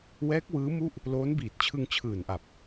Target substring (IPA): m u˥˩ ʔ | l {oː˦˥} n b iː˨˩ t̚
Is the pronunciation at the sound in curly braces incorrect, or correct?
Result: correct